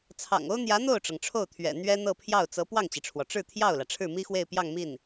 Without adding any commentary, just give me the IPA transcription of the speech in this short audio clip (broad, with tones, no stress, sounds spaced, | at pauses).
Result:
t͡sʰ ɑ̰˨˩ ŋ o˥ ʊ̯ n̪ j ä˧˥ n̪ o˥˩ ʊ̯ ʈ͡ʂ ɤ˩ ŋ ʈ͡ʂʰ o˥˩ ʊ̯ t̪ʰ ɥ ɛ̰˨˩ n̪ ɥ ɛ˥ n̪ ɤ˥˧ pʰ j ɑ˥˩ ʊ̯ t͡s ɤ˧˥ p w ɑ˥˩ ŋ t͡ɕ i˩ ʈ͡ʂʰ w ɔ˩ ʈ͡ʂ ɻ̩˥˧ t̪ʰ j ɑ˥˩ ʊ̯ l ä˩ ʈ͡ʂʰ ɻ̩˥˩ m i˥ x w e˥˧ ɪ̯ p j ɑ˥˧ ŋ m i˥˩ n